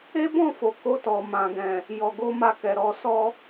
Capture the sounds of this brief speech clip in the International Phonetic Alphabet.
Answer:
e˦bɔ̃˦˨fo˨ ko˧tɔ˨ mã˨ɡɛ̃˨ | jɔ˨ɡo˧ ma˧kɛ˨ɾɔ˧ sɔ˧

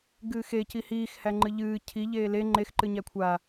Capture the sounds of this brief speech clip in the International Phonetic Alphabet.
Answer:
ɡɨːxe cihiːx hæŋ͡ǃɨʎɨː cʰi ʎeːle ŋ͡ǃex ǃɨɲækʷʰa

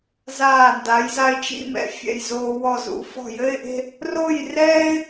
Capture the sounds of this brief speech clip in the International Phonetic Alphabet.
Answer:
zaː˧˩nda˩˧j za˧ɪ̯t͡ʃḭ˥˧mɛ̰˧ fʲɛ̰˧˩jzoː˧ wɔ˧˩ zṵ˧fɔ̤˧˩jɘ˥˧ɪ̯ʔe̤˥˧ | ro˥˧jrɛː˥ɪ̯

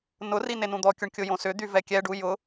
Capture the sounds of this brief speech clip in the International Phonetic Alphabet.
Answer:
nʊri nenũd̪ɔkʲʊɳ kʲʊjõsʏd̪y vɛkʲɛɖu jʊ

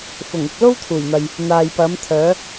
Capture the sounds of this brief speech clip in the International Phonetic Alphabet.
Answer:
fʊ˨˩ŋɪ˨k̚ lo˥wt̪ʰuː˨˩jn̪ɐ˨j | n̪aː˨jpɐ˨˥mt̪ʰœː˨˥

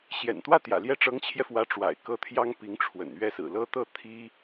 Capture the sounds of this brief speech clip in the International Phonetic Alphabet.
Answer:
ɕjɛ̰˨˩nt̪wä˥˩t̪jä̰˨˩ ljɛ˥˩ʈ͡ʂɤ˧˥ŋt͡ɕʰjɛ˧fwä˧˥ ʈ͡ʂwa̰˨˩ɪ̯kɤ˥˩t̪ʰjɑ˥ŋ pi˧˥ŋʈ͡ʂʰwə̰˨˩n ɥɛ˥˩sɹ̩˨˩lɤ˥ t̪ɤ˥˩ t̪ʰi˥

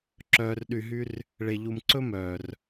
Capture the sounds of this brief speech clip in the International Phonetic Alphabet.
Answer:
ǁœː˨rɗy˨ɦy˦r | ɭe˨ʎu˨mǀɵ˥mœː˩r

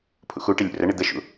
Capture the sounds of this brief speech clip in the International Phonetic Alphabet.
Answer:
pʰṵxuʈɪ lʲṵrəɳɪ d̪əʃṵ

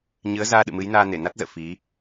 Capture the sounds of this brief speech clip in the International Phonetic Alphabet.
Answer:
ɲɨ˨˦ə̯zaː˧ɗɨ̰˧˨ mɨ˨˦jnaː˧ ne˧˩na˦˥t̚zə̰ː˧˨ fi˨˦

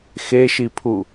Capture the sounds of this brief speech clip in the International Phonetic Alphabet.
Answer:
xeʃipʰu

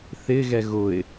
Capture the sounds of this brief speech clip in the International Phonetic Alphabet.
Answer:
θɪɣɛ ɣʊɪ̯

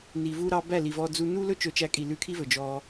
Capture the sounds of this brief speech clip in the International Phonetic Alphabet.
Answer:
ni˨vu˧ɾɑ˧ bæ˦˨li˨vɔ˧ d͡zu˧nu˦lɵ˦ t͡ʃɵ˨˦t͡ʃæ˨˦kʼi˨ lʉ˧kʰi˦vɵ˨ d͡ʒɔ˧

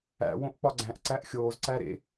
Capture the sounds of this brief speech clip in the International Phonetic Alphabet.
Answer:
æ̰ wõʔk͡pɒɡ͡ǀæ̃ʔ ǀæʔxʲoːz ǀæɾḛ

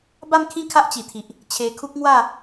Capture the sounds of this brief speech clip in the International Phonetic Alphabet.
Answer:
ba˥˧mkʰĩ˥˧ kʰa˦ʔt͡ɕi˨˩t̪ʰi˨ʔ | t͡ɕʰe˧kʰu˦k̚ŋwa˥˧

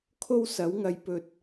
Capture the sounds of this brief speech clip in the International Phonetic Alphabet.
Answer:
kʰo˥wsɐ˨˥wŋɐ˧j pɵ˧t̚

